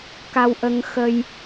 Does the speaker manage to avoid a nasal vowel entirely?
yes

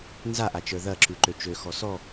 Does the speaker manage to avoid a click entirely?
no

